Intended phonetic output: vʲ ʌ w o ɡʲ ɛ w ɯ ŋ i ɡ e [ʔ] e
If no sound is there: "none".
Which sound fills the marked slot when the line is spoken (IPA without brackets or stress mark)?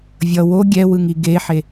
ħ